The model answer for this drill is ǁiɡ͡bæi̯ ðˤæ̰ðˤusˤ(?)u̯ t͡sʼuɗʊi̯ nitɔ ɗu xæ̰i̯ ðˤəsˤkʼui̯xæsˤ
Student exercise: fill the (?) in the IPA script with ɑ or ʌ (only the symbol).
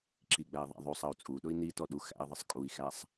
ʌ